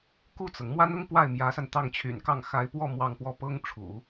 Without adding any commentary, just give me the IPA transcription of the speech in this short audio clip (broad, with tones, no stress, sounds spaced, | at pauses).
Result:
k u˥˩ t͡s ɤ˩ ŋ m w a˥ n ʊ˥ ŋ p w a˥˩ ɪ̯ m j ä˧˥ s a˧ n t̪ ɑ˥˩ ŋ t͡ɕʰ y̰˨˩ n k ɑ˥˩ ŋ x a˧˥ ɪ̯ p w ɔ˥˧ m w ɑ˥˧ ŋ p w ɔ˥˩ p ɤ˥ ŋ ʈ͡ʂʰ ṵ˨˩˦